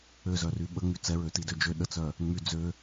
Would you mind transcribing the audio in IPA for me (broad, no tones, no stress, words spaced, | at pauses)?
øzœry ɓəŋ͡my t͡sɛɹøtidø d͡ʒø ɗət͡sœ | ŋ͡my d͡zø